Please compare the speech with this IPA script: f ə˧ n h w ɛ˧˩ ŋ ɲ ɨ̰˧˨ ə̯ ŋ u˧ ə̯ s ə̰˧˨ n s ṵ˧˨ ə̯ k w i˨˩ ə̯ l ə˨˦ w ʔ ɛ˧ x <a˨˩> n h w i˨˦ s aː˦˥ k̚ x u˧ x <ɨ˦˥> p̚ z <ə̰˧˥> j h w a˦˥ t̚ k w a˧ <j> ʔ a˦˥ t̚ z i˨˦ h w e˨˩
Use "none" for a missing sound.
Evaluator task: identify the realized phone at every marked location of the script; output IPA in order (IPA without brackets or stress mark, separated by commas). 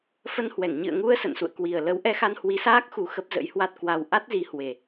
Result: a˧, ə˦˥, ə̰˧˥, w